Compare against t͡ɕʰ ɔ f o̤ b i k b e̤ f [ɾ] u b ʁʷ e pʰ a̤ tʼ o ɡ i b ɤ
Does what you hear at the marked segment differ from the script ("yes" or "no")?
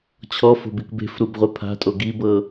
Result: no